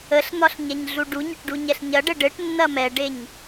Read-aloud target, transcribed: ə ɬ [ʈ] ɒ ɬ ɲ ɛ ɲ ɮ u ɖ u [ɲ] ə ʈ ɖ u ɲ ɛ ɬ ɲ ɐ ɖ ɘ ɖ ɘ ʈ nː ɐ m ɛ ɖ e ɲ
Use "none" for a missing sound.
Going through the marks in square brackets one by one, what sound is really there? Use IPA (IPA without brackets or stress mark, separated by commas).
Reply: n̪, ɲ